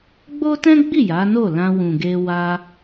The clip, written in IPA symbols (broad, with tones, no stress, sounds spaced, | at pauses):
ɡ͡b o˦ t ɛ̃˦ ɡ͡b i˦˨ j a˨˦ n o˦˨ l ã˧ w ũ˨ ɡ e˧ w a˧